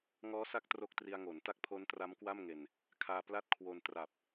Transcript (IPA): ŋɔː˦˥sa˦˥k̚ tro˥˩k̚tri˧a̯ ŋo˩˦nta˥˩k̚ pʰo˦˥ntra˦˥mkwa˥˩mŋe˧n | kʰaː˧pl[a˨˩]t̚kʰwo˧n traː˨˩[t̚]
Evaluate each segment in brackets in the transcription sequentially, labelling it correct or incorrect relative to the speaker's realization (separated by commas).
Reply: incorrect, incorrect